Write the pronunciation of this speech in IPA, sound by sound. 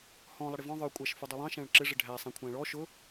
h ɔ̃ lˠ ʌ ɽ ɪ v ɔ̃ ðˤ ə˞ kʷʼ æ ʃ f u dˤ u lˠ ɑ̃ ʃ æ̃ ɭ ǁ ɪ ʐ ɪ ɖʱ æ sˤ æ̃ kʷʰ æ̃ ɭ ɔ ʃ ʊ

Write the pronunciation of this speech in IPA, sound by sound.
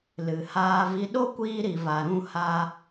l ɨ˨ h aː˧ v i˧ ɗ o˦ kʷ iː˧ ɾ i˨ v a˨ ɾ ũ˧ h a˧

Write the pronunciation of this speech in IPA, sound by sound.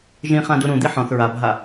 ʒ ĩ χ ã d u ɾ ũ d̪ i ħ ɔ̃ θ ɹ a bʱ a

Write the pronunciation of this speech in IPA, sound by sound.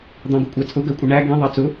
d̪ ɑ̃ ɡ ʊ kʷʼ æ t͡sʼ ʊ ɡ ɜ kʷʼ ɪ ɳ æ ɡ ĩ ðˤ ɑ t͡s ʊ

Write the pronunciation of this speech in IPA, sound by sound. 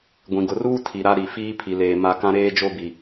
ɡʷ ĩ˨ ɡ ʊ˨ r uː˦ tʰ i˨ ɾ a˦ ɾ i˨ f iː˦ pʰ i˨ l eː˨ m a˦ k ã˦ ɾ eː˦ d͡ʒ o˦ b i˨

